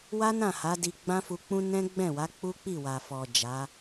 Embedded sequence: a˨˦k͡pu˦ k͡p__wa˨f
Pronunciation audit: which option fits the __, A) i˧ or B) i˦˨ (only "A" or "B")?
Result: B